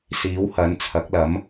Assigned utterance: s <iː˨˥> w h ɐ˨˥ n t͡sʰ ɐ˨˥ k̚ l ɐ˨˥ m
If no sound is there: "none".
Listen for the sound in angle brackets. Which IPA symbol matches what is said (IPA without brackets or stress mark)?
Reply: iː˨˥